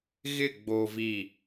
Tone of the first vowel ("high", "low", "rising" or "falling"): falling